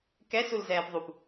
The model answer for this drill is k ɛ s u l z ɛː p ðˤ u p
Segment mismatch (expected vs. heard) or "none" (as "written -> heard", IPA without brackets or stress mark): none